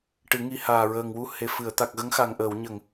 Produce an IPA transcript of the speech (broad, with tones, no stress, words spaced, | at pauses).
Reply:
ʈɨ˨˩˦ŋi˧˥ haː˨˩ɹəː˨˩ŋwu˧˥ he˨˩fɨ˨˩˨ə̯ t̪a˨˩k̚ɣə˧˥ŋxa˨˩ŋ ʔəː˨˩˨wɲə˨˩˨ŋ